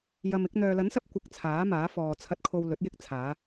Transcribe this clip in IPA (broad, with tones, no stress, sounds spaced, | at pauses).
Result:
j ɐ˧ m ɪ˨˥ k̚ n̪ œː˨ l ɐ˨˥ n s ɐ˧ p̚ kʷ ɪ˧ k̚ t͡sʰ aː˨˥ m aː˨˥ f ɔː˨ t͡sʰ ɐ˧ t̚ kʰ o˧ w l ɵ˨˥ t̚ j ɪ˥ k̚ t͡sʰ aː˨˧